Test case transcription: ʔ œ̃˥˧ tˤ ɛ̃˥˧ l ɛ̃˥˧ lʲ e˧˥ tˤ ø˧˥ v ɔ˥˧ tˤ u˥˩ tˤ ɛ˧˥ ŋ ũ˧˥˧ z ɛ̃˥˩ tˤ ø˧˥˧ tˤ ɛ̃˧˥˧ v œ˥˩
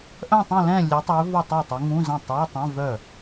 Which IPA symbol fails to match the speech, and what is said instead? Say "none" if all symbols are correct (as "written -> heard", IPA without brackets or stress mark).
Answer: none